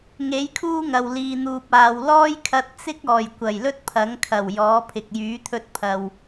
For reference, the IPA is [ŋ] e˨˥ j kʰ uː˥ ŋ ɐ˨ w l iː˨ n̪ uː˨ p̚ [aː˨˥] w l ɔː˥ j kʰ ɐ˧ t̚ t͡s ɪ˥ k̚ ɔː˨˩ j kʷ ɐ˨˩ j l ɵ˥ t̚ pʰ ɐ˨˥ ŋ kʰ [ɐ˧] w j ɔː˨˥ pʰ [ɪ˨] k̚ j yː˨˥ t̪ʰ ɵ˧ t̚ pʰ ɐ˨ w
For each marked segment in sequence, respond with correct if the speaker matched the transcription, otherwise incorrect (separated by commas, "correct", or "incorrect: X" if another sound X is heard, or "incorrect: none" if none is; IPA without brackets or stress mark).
correct, incorrect: aː˨, incorrect: ɐ˨˩, correct